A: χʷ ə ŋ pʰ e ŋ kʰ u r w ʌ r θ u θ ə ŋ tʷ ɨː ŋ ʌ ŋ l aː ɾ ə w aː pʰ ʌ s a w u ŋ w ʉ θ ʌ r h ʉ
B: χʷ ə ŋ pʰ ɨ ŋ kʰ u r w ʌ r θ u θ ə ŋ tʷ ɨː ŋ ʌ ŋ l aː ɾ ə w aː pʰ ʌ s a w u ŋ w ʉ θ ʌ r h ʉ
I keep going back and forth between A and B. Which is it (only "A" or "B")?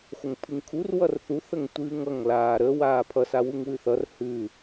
B